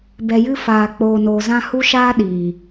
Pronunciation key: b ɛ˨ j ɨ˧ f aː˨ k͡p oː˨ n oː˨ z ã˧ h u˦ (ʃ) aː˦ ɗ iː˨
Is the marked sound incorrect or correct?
correct